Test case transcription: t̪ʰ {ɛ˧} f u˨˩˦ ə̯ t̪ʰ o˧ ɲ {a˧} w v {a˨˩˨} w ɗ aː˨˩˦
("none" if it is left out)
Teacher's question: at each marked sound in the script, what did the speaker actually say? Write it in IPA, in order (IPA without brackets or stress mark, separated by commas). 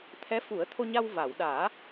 ɛ˧˥, a˧, a˨˩˨